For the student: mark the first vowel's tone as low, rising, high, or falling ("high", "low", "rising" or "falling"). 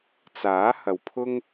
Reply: rising